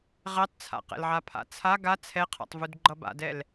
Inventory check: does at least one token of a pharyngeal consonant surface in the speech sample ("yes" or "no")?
yes